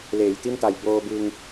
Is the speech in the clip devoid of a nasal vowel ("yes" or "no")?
yes